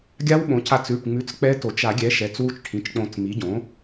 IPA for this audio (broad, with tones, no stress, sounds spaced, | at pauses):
ɡʲ a˦˥ w ɓ õ˩˥ c a˧ t͡s ʉ˩˧˩ ʈ ŋ͡m ʉ˩˥ t͡s k͡p ɛ˦˥ t o˨˩˦ t͡ʃ a˨˩˦ ɡʲ ɛ˩˥ ʃ ɛ˩˧˩ t͡s w u˧ t͡ʃ ʈʰ ĩ˩˧˩ t͡ʃ k͡p õ˨˩˦ t͡s m i˩˥ ɟ õ˩˥